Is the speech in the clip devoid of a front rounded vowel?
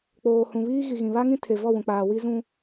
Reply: yes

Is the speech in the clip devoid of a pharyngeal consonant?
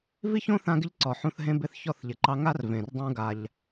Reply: no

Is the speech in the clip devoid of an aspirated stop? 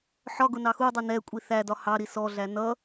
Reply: yes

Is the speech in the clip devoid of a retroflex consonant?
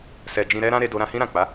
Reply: yes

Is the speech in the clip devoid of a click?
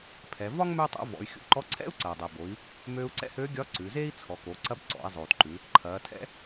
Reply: no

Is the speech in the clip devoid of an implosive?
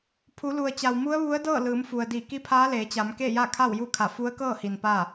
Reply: yes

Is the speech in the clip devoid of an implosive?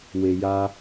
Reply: yes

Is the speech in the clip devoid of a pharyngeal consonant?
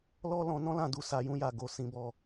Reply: yes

